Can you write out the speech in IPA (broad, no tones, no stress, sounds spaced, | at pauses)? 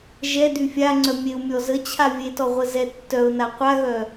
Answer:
ʒ ɛ d y fʲ a ŋ͡ǀ œ mʲ e ʊ̯ mʲ ɔ z ə t͡ɕʰ a vʲ e t ɔ ʁʷ ə z ɛ tː œ ʊ̯ n a qʷ a ɣ œ